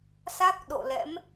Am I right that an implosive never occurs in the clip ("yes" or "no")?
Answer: no